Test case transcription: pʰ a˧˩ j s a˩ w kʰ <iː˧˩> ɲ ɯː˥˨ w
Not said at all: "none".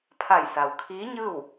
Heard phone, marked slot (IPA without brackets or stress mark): iː˧˥